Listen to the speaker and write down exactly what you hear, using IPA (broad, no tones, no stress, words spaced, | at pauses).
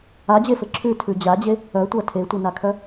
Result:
ad͡ʑefɘ ǁʰʉtʰʉ d͡ʑad͡ʑe | œtʷa tʰetʷinakʰœ